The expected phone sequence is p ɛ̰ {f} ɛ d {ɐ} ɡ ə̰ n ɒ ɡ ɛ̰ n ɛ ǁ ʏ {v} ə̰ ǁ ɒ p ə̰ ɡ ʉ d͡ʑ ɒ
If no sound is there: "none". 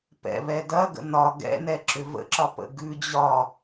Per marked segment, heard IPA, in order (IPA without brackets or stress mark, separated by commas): β, ɐ, v